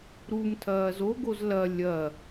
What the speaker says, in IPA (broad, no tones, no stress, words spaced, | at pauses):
ɾumtʰɐː zoɡoz lɐ lʲɐ